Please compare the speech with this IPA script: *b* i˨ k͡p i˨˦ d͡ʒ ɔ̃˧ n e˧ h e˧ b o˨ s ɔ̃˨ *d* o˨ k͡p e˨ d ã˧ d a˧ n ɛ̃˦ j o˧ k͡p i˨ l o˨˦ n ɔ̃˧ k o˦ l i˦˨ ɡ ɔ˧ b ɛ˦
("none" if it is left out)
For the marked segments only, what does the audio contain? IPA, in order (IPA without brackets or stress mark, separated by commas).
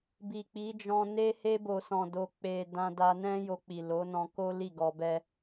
b, d